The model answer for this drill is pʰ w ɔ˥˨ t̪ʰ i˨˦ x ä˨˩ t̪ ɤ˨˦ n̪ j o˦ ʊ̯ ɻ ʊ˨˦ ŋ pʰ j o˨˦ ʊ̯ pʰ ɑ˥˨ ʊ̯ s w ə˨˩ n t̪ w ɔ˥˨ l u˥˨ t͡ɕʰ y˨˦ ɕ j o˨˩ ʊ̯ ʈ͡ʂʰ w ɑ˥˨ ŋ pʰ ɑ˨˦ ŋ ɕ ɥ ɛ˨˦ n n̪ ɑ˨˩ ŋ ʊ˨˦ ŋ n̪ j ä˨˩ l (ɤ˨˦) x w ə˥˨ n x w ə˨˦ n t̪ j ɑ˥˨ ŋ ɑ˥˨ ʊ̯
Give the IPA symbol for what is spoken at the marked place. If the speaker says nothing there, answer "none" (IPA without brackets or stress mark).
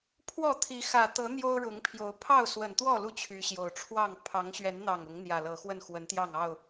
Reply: ɤ˨˦